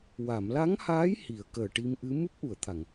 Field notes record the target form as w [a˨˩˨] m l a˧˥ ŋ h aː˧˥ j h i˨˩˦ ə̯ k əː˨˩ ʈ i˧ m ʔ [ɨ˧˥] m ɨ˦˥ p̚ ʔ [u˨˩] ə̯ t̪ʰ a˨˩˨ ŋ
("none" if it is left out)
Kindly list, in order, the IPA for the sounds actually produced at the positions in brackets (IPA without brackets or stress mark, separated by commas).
a˨˩˨, ɨ˧˥, u˨˩˨